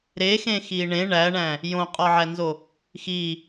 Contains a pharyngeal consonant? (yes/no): yes